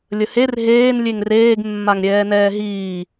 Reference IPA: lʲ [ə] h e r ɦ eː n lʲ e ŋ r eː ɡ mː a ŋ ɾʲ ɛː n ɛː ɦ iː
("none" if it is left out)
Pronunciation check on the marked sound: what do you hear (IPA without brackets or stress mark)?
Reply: ə